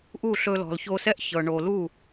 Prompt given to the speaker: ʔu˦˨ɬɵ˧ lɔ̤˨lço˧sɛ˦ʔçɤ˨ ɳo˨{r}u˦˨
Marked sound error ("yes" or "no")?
yes